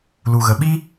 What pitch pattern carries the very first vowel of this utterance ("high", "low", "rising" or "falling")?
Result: low